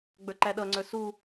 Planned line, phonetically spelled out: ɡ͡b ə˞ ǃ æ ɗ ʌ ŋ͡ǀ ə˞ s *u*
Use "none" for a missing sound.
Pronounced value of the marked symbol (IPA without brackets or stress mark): u